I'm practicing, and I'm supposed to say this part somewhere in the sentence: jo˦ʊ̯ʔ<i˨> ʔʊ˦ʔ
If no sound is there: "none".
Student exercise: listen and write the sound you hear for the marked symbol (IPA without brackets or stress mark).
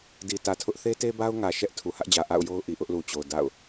i˨